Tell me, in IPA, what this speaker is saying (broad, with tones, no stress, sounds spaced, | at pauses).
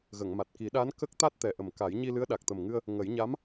ɣ ə˨˩˨ ŋ m a˨˩ t̚ k i˨˩˦ ɗ a˧˥ n k ə˦˥ k̚ t̪ a˦˥ t̚ t̪ ɛ˨˩ ʔ ə˨˩ m k a˨˩˦ j ɲ i˧ l ɨ˧˥ ə̯ ɗ a˨˩ k̚ t̪ ə˨˩ m ŋ ɨ˧ ə̯ | ŋ ə˨˩˦ j ɲ a˧˥ m